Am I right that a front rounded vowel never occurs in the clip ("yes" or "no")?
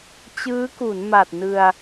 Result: yes